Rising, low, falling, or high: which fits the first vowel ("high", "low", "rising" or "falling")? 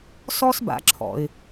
high